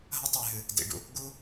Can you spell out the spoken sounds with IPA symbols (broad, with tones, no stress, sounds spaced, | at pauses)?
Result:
ɦ ɐ˦ tˤ ɨ˨ j ɦ ɨ˨ | d ḭ˨ ɖ ṵ˧ | ɡ u˦